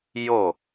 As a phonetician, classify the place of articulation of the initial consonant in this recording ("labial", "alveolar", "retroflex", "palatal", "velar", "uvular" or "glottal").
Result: palatal